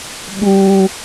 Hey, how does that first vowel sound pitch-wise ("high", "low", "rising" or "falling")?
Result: high